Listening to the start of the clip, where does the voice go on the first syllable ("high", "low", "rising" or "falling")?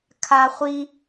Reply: high